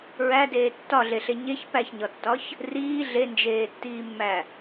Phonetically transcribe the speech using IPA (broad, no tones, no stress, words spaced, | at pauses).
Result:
ɹædeː tːɒɮeɬe ɲeç pæçɲɒtːɒç | riː ɮend͡ʒeːtːiːmːæ